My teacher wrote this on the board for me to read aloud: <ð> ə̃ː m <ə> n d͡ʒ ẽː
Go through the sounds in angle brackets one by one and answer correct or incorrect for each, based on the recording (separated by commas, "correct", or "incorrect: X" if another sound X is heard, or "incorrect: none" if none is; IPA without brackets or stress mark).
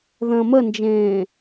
correct, correct